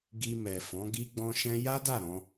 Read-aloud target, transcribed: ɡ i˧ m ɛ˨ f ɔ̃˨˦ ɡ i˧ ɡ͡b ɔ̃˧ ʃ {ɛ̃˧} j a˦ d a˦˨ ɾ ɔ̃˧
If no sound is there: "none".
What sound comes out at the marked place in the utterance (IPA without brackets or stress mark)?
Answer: ɛ̃˧